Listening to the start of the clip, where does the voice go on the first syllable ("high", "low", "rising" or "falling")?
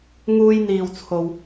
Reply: low